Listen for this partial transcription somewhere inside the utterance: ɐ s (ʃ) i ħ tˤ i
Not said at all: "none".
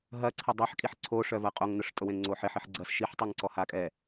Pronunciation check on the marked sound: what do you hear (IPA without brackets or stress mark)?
ʃ